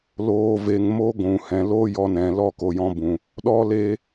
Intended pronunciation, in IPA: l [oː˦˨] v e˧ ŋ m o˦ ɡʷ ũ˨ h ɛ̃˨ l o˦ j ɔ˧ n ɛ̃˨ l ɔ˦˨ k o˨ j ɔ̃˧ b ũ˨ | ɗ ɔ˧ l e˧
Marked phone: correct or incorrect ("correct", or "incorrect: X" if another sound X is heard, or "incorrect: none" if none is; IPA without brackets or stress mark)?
incorrect: oː˧